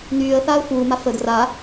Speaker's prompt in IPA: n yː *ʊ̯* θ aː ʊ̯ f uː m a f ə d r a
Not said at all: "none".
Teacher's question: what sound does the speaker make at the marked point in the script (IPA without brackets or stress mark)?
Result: ə̯